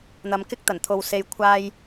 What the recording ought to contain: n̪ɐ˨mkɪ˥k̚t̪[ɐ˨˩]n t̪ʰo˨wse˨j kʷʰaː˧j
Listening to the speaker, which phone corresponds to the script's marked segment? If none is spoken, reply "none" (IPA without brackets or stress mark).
ɐ˨˩